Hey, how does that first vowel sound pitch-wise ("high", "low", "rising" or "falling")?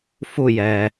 falling